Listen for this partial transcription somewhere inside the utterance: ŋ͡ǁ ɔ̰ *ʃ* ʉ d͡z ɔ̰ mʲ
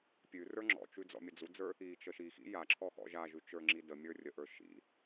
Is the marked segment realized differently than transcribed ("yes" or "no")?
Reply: yes